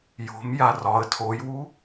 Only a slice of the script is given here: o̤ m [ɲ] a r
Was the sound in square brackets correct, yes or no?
no